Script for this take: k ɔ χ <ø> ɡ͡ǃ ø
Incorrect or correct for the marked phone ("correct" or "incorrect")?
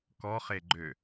incorrect